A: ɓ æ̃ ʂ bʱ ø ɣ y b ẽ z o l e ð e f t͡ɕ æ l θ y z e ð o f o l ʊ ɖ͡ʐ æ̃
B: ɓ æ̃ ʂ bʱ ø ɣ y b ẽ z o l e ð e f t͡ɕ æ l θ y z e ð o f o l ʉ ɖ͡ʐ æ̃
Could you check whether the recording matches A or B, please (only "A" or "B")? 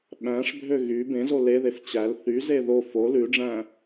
B